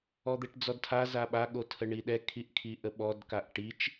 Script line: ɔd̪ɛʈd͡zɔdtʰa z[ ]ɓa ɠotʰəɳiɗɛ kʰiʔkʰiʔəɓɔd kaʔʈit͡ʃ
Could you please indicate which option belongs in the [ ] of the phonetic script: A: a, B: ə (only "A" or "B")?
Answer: A